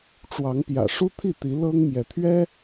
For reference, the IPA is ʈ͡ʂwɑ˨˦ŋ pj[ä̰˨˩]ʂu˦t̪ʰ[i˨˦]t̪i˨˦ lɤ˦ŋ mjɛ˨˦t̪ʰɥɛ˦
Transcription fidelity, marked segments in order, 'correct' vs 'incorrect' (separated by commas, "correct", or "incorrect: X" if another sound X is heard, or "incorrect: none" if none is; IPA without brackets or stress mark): correct, incorrect: i˥˨